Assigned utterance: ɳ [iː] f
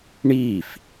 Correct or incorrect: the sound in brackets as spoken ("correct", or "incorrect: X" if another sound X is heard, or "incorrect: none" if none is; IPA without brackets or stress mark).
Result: correct